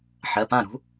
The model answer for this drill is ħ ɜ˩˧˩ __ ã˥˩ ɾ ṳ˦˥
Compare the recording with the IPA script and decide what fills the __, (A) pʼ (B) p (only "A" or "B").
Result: B